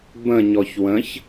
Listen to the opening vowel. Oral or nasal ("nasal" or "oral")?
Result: nasal